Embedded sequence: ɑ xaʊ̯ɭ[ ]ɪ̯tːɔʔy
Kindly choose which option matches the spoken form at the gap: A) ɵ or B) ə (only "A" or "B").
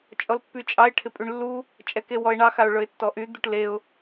A